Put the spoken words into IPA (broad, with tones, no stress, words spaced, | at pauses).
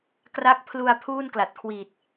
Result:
kra˦˥k̚pʰlu˧a̯ pʰuː˥˩nkla˨˩t̚kʰwiː˨˩t̚